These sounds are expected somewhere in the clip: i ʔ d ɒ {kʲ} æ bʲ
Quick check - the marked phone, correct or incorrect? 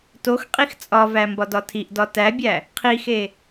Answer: incorrect: t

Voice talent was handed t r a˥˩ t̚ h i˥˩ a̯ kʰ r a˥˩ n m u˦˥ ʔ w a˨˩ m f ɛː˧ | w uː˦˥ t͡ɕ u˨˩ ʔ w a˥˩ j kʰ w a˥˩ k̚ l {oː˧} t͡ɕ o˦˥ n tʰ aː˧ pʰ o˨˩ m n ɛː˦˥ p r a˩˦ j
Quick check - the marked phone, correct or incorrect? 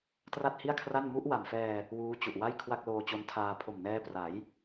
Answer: correct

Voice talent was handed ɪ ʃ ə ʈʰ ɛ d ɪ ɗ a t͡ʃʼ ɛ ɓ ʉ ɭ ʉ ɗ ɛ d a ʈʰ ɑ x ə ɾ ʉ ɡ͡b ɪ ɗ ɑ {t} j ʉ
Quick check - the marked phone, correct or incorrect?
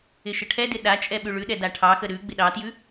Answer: correct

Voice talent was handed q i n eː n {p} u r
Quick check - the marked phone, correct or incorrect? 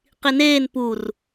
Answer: correct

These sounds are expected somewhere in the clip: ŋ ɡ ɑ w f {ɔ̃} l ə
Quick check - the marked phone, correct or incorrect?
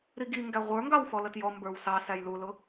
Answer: incorrect: ɔ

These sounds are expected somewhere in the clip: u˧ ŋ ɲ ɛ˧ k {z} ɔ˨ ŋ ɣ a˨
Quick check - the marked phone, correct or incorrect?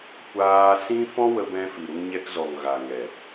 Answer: correct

